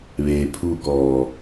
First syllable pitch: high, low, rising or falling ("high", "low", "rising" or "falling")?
low